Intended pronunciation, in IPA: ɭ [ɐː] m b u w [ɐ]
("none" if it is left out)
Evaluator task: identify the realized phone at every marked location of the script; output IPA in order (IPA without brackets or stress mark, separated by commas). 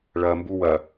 ɐː, ɐ